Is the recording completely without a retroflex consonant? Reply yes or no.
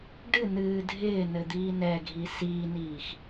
no